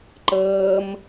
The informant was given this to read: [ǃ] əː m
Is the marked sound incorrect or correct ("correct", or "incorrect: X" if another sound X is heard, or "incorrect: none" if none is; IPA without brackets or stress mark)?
correct